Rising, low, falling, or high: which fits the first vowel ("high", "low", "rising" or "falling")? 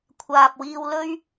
low